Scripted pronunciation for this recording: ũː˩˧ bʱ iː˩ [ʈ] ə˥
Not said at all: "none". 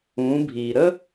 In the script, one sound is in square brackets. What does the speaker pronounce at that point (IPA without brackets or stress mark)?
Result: ɾ